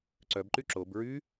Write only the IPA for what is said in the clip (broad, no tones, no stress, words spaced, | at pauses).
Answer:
ǀœbǃy ǁob ɹy